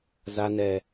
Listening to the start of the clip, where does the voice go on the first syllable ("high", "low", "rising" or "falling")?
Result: low